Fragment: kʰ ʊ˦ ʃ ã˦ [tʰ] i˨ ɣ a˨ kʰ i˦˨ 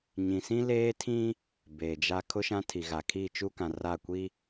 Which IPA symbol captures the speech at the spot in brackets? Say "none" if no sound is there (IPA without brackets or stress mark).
tʰ